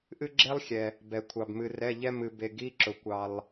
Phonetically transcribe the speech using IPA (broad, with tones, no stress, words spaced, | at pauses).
ʔɨ˦ɡ͡ǁe˦lˠxʲɛ˩ | bɛ˩kʷʰɑ˩bmɨ˩rɛ˩˧˩ ʎɛ˦ mɨ˩be˩ ɡi˩˧˩ ǁʊ˩kʷɑ˩lˠ